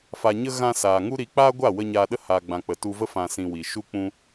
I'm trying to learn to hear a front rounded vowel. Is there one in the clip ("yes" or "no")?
no